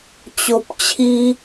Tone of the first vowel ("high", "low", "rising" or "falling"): low